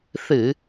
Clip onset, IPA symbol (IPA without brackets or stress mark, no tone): θ